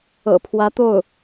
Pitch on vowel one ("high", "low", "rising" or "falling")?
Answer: low